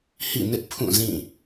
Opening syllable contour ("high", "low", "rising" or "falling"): falling